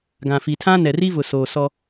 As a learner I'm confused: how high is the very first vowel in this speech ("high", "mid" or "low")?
low